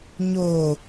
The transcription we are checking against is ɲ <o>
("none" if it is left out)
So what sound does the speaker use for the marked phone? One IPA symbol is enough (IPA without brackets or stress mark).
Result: o